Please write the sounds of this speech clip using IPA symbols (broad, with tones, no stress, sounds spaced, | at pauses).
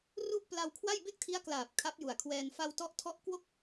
r u˥˩ ʔ p l a˧ w kʰ w a˥˩ j b e˥˩ k̚ tʰ i˦˥ a̯ k l aː˨˩ p̚ kʰ a˦˥ p̚ j u˨˩ a̯ kʰ w ɛː˧ n f a˧ w t ɔ˦˥ ʔ tʰ ɔ˦˥ ʔ k w o˥˩ k̚